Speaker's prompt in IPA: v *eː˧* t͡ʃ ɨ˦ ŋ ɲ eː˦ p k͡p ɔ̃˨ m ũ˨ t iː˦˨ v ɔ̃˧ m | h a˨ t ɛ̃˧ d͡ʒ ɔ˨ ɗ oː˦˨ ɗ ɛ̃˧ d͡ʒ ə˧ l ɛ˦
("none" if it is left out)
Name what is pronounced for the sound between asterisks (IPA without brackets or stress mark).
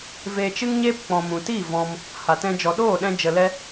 eː˧